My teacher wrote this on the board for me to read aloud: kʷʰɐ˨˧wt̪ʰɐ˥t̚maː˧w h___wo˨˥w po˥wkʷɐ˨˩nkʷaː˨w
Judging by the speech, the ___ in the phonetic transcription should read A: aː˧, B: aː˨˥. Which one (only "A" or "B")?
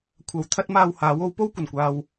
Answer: B